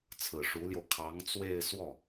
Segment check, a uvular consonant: absent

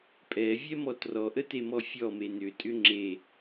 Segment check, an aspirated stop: absent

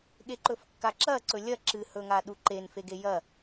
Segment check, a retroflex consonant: absent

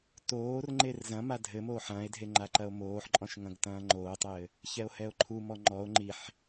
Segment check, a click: present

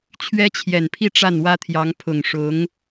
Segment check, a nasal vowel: absent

